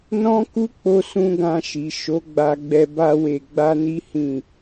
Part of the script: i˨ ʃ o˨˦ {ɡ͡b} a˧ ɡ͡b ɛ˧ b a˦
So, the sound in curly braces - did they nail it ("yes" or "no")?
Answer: yes